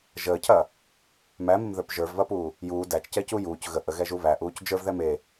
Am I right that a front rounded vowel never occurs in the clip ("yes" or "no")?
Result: yes